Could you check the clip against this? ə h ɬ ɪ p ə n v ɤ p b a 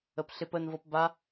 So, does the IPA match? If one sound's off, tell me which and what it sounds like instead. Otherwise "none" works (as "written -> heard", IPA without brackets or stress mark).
h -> p